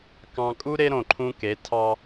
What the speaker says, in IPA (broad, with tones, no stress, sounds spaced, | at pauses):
k ɑ̃˨ kʼ u˦ ɾ e˦ ɾ õ˨ ǃʰ ũ˦ k e˨˦ tʰ ɑ˦